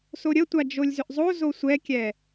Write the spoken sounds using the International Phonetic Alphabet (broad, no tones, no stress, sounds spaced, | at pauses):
s o ɾʲ ə tʷ a d͡ʒ o lʲ z ʏ ʔ zˤ o z o sʷ ɛ kʲ ɛ